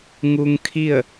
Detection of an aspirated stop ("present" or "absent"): present